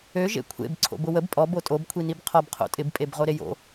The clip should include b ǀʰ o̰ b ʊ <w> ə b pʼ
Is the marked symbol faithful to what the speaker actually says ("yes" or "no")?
yes